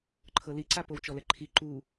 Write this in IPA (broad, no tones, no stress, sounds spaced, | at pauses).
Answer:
ǃʰ ɤ l i ǀ a p o w t͡ʃ ɔ l ɛ ǃʰ i ǃ u